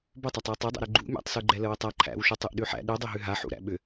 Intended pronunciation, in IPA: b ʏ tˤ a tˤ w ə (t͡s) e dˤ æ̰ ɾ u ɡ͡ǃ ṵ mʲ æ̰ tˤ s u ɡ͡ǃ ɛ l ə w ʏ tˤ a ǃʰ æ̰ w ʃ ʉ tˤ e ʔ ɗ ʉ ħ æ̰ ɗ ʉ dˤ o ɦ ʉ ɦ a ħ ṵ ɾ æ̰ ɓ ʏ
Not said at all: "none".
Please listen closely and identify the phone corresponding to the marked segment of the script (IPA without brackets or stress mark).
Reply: tˤ